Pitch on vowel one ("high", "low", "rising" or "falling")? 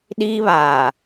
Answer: high